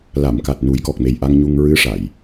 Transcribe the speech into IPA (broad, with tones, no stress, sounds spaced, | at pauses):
l a˨˩˨ m k a˨˩ t̚ n u˨˩˦ j k ɔ˨˩ k̚ m e˨˩ j ʔ a˧ ŋ ɲ u˧ ŋ ɹ ɨ˧˥ ʂ a˨˩˨ j